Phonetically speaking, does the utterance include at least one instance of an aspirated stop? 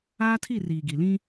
yes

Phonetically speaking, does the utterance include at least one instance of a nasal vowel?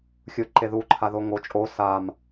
no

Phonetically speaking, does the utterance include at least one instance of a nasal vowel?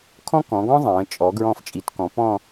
yes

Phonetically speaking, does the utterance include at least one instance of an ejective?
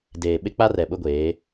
no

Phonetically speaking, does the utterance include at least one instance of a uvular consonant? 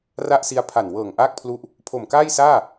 no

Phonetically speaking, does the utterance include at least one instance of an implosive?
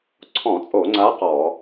no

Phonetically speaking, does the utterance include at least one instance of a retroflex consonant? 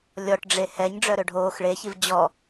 yes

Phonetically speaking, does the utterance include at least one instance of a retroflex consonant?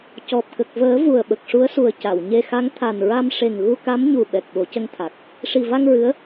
yes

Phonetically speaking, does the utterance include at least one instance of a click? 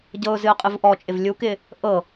no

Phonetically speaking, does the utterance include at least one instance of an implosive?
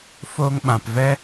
yes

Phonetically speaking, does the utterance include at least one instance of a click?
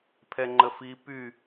yes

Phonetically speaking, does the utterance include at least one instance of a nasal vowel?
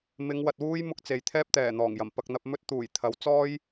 no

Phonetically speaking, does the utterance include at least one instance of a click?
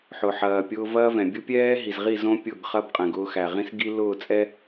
no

